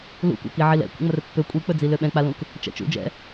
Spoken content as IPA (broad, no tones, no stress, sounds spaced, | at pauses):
l ṵ kʷ a̰ k i ʕ i l ɛ̰ kʷ ə̰ ŋ͡m ə r pː ø kʷʼ i k͡p ɵ d͡z i l ø ɓ ɛ̃ k͡p a l ũ k | t͡ʃ ɛ̰ t͡ʃ ṵ d͡ʒ ɛ̰